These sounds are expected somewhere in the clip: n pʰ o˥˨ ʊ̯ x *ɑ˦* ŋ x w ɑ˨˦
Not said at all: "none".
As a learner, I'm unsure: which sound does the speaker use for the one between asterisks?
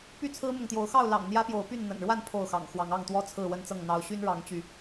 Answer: ɑ̰˨˩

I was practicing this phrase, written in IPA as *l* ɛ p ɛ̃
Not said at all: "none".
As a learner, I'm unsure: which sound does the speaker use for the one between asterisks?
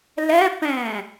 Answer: l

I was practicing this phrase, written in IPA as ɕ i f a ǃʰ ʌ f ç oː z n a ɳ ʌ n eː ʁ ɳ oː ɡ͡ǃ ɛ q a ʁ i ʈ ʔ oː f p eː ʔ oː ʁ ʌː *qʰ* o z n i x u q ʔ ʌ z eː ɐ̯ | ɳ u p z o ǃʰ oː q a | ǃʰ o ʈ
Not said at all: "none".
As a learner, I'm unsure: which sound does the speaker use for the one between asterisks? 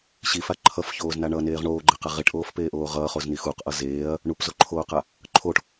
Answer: χ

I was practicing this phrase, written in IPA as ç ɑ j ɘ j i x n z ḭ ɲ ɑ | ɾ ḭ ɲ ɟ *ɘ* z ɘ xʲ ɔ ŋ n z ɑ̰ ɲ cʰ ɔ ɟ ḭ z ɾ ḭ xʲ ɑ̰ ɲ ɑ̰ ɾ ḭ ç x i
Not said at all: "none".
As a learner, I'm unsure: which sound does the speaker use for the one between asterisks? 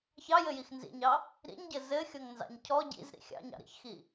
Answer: ɘ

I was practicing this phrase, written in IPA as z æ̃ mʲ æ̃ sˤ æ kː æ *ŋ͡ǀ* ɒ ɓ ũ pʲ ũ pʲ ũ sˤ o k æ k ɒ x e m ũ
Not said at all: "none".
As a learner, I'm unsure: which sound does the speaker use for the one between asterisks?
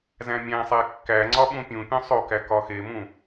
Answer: ŋ͡ǀ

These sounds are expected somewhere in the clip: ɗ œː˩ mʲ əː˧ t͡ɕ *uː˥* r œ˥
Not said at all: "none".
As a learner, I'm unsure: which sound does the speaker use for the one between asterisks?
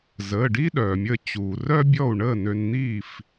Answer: uː˩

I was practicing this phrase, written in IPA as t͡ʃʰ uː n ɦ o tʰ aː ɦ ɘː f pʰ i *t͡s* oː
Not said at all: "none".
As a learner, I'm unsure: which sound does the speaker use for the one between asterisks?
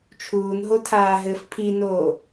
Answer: n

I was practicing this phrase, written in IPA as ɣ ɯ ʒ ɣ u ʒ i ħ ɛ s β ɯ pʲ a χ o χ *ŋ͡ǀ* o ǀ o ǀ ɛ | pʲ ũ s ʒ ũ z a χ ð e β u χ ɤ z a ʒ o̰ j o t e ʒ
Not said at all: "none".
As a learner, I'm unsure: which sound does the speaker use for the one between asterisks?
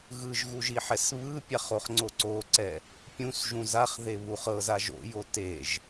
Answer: ŋ͡ǀ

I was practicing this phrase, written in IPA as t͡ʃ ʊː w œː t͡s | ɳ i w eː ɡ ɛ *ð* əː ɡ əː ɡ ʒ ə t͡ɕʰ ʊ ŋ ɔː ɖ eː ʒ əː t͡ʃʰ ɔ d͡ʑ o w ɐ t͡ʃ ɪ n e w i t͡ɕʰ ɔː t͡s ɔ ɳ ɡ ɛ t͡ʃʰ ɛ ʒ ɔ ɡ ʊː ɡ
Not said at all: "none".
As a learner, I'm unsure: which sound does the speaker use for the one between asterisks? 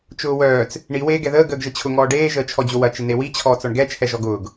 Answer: ð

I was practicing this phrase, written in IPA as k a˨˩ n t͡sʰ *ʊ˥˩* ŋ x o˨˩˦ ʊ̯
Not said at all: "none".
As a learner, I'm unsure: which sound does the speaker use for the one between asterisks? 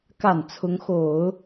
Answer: ʊ˧˥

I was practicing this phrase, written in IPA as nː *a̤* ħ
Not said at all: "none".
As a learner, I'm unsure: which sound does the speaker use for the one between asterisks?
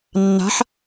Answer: a̤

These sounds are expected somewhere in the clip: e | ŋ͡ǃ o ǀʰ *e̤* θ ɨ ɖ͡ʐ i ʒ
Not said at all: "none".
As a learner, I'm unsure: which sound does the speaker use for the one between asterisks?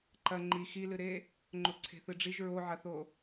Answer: e̤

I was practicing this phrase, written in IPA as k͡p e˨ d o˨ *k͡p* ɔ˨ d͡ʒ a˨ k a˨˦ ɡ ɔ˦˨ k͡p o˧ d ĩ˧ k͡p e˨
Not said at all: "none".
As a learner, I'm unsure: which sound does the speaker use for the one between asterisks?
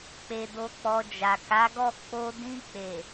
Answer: k͡p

